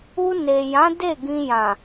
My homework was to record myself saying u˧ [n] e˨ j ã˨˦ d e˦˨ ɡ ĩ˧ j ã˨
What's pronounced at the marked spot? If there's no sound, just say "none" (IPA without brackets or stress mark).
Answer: n